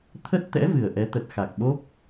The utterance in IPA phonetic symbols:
t̪ʰ ə˦˥ t̚ t̪ ɛ̰˧˥ v ɨ˨˩ ə̯ ʔ ɛ˨˦ t̪ ə˨˩ t̚ x a˨˩ k̚ ɓ o˦˥ p̚

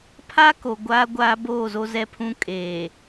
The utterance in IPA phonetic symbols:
pʰ a˦ k o˨ ɡʷ aː˦ ɡʷ aː˦ b oː˦˨ z o˦ z ɛ˦ pʰ ũ˦ kʼ eː˨

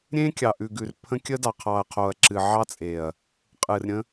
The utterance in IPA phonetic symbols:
ɾʲ ẽ˦ kʲ ɑ˨ ʔ ʉ˨ ɡ ʉ˨ r pʰ ə̃˦ kʲ ə˦ d ɑ˨ qʰ ɑ˨ ɐ̯ qʰ o˨ ɐ̯ ǁ ɨ˨ ʕ ɑ˦ t͡sʼ e˨ ɐ̯ | qʼ ɨ˨ r ɾʲ ə̃˦

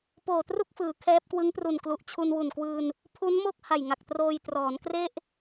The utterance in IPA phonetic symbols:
p oː˨˩ t r u˥˩ k̚ f ɯː˩˦ kʰ ɛː˦˥ p̚ k w ɯ˦˥ ŋ p r u˨˩ n k l u˨˩ ʔ t͡ɕʰ u˧ n w u˨˩ n k w ɯː˧ n | pʰ u˦˥ n m o˥˩ k̚ h a˨˩ j ŋ a˨˩ k̚ t r oː˧ j t r ɔː˩˦ n k r e˥˩ ʔ

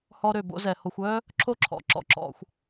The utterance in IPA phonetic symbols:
h ɔ˦ ɾ ø˨ b o̰˦ z ɛ˩ h o˨ xʷ œ˦ | ǁʰ o˦ ǁʰ ɔ̰˩ ǁ ɔ̰˨ ǁ ɔ̰˨ xʷ

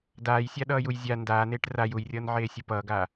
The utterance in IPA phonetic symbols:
d aː j sʲ a ɗ ʌː j u j zʲ a n d aː n eː ʈ r a j u j rʲ ʌː n ʕ eː sʲ ɯ p ʌː ɡ aː

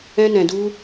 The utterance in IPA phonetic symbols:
ɛ̃˦ n ɛ̃˧ d u˦

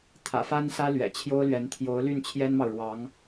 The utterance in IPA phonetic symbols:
t̪ʰ ä̰˨˩ f a˥ n s ä˥ l ɥ ɛ̰˨˩ t͡ɕʰ j o˥ ʊ̯ l ɥ ɛ˧˥ n t̪ʰ j o˧˥ ʊ̯ l y˥˩ n t͡ɕʰ j ɛ˥ n m ɑ˨ ʊ̯ ɻ w ɑ˧˥ ŋ

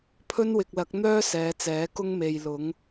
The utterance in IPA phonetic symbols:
pʰ ɵ˥ n w ɪ˨ k̚ l ɐ˨˥ k̚ n̪ œː˥ s ɛː˨˧ t͡s ɛː˨˥ k ʊ˥ ŋ m e˨ j l ʊ˨˥ ŋ

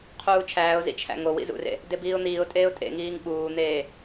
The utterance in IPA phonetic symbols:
qʰ uː t͡ʃʰ æː ʊ̯ z ḭ t͡ʃʰ æ̰ ŋ o w ḭ z ṵ r ḛ | d e b iː ʊ̯ n̪ iː ʊ̯ tʼ eː ʊ̯ tʼ ḛ ŋ iː ŋ ɓ uː n̪ eː

